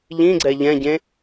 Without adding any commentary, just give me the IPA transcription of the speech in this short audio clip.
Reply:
ʎ ĩ ɡ͡ǀ ɛ ʎ ɛ̃ ɟ ẽ

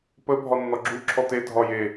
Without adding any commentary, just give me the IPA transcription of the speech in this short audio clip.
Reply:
p ə bʱ ɒ nː ɒ ɡ͡ǁ u ǁʰ ɔ t e dʱ ɒ j e

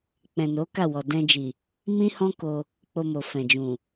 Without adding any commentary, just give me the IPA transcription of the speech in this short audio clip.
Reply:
k͡p ɛ̃˨ n o˨˦ k a˦˨ w ɔ˨ d ɛ̃˧ d͡ʒ i˨ | m ĩ˦ h ɔ̃˦ k o˧ | k͡p o˧ m o˨ f ɛ̃˨ d͡ʒ ũ˨

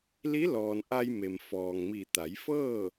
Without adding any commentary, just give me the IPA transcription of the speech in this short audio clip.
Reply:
l i˧˥ l ɔː˩ n ʔ a˧ j m e˩ m f ɔː˩ ŋ m i˧˩ t̪ a˩˧ j f ɤː˥˨

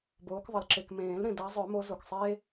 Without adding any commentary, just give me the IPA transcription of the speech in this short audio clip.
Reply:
b oː˨˦ k ðˤ ə˨ l ǁ e˨ k m ẽː˨˩˦ l ɾ ẽ˨ d a˨˦ zˤ œ˨˩˦ m o˨˦ z o˨ k sˤ eː˦

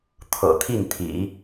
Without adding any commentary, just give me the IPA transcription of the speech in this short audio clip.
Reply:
t̪ʰ ɤ̰˨˩ t̪ʰ i˥˩ n t̪ʰ ḭ˨˩˦

